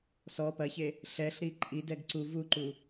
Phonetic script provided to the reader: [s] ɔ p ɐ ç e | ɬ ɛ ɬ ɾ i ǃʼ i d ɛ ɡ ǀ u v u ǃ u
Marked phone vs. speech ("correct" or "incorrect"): correct